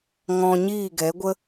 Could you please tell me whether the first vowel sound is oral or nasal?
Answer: nasal